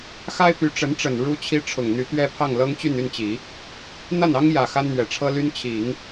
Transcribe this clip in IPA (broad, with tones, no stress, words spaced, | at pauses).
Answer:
xa˥ɪ̯py˧˥ʈ͡ʂə˧˥nʈ͡ʂə˨˩n ɻu˥t͡ɕʰi˥ ʈ͡ʂʰʊ˨˩ŋn̪y˧˥ t̪ɥɛ˥pʰɑ˥˩ŋ lɤ˥ŋt͡ɕy˥˧ny˥˩nt͡ɕi˨˩˦ | n̪a˥˩nɑ˥ŋjä˨˩ xa˥nn̪ɥɛ˨˩ʈ͡ʂʰɤ˥ly˥n t͡ɕʰi˨˩˦ŋ